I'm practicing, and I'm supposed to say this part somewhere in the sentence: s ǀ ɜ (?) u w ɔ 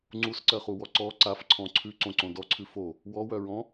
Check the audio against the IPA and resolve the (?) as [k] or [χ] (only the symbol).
χ